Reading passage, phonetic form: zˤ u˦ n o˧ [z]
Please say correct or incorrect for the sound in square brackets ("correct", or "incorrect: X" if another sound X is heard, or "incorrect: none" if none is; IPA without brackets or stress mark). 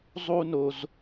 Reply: correct